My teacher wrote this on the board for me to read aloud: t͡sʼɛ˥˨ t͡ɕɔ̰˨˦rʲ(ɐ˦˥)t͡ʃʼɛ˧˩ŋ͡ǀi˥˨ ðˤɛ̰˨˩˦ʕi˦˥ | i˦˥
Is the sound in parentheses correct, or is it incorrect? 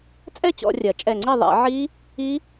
incorrect